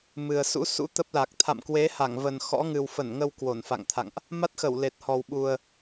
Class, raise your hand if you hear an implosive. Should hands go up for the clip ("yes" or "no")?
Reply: yes